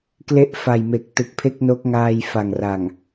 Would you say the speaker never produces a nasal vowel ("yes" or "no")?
yes